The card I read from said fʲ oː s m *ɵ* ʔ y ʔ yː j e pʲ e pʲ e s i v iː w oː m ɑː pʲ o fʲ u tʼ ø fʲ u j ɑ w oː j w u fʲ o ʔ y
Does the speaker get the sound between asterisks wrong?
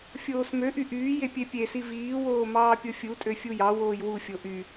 yes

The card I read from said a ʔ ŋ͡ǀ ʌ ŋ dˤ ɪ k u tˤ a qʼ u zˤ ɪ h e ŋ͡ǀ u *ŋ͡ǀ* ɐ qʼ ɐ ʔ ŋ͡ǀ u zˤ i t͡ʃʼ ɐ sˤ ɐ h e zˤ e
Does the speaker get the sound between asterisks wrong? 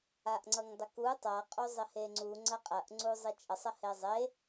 no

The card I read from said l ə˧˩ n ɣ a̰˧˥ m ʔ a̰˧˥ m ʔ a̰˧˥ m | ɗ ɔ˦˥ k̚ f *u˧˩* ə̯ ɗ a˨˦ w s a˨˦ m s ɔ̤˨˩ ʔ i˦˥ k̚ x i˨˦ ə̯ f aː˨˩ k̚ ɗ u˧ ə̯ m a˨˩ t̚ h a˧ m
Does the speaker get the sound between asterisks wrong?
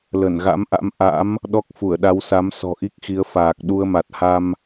no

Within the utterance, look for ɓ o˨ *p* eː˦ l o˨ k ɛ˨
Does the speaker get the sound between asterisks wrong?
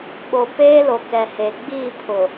no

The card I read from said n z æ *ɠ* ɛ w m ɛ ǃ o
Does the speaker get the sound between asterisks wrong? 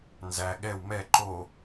no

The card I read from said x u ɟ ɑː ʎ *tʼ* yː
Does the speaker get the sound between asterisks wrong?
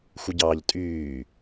no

